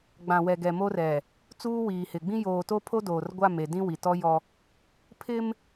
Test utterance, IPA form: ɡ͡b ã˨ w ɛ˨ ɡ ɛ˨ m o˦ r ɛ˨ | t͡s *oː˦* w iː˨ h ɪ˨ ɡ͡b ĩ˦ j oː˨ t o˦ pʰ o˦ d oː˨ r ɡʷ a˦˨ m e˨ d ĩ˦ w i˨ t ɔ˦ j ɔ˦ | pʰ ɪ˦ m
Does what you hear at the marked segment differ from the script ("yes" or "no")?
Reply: yes